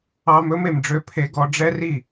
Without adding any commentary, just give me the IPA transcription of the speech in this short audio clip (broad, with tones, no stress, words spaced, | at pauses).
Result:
ɑ˧m ɵ˦me˨mɖ͡ʐø˧ pʰe˧ɡɔ˧ɖ͡ʐɛ˦ri˦˨